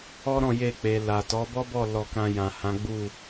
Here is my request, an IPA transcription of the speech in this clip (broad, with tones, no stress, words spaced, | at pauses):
ɔ˦ɾɔ̃˦˨je˧k͡pe˨ la˨ tɔ˨˦bɔ˦bɔ˦˨ lɔ˧kã˧ jã˨hã˨˦ɡ͡bu˦˨